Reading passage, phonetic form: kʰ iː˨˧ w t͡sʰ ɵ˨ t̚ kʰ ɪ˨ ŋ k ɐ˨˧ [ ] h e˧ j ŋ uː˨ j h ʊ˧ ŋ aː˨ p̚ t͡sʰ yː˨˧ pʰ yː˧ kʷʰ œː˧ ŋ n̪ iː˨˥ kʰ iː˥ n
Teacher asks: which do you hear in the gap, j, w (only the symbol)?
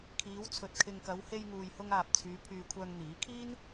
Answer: w